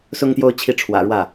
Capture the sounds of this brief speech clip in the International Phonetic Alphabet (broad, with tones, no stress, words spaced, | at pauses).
sʊ˥ŋt̪jo˥˧ʊ̯ t͡ɕʰi˥˩ʈ͡ʂʰwä̰˨˩ɻwä˥˩